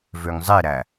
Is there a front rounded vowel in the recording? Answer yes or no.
yes